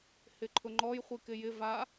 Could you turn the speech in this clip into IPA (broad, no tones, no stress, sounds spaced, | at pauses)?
h ɪ ǃʰ ʊ ŋ͡ǃ ɔ j χʷ i k ɪ j ɪ v a